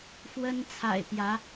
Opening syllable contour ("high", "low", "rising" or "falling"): high